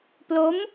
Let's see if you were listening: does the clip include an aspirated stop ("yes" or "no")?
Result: no